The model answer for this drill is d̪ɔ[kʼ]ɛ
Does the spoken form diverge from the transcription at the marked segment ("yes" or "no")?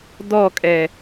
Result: no